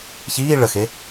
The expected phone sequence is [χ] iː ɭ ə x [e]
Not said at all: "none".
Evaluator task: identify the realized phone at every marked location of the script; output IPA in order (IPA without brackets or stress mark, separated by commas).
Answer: ç, e